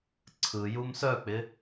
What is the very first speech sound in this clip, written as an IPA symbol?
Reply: ǀʰ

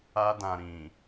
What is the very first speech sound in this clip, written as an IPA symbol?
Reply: a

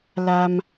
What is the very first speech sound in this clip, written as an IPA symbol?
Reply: l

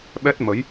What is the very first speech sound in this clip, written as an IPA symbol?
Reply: ɓ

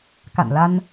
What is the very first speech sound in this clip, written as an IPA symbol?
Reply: k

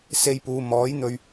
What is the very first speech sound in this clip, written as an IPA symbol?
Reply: s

